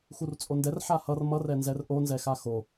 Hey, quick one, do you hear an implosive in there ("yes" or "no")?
no